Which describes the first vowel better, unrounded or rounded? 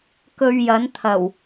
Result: rounded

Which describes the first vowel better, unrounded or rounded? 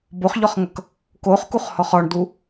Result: rounded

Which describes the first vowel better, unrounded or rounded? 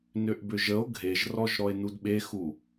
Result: rounded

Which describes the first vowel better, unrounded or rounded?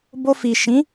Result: rounded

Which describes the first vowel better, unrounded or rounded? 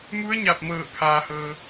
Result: rounded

